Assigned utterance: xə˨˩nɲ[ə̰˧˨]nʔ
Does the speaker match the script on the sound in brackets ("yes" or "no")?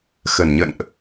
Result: yes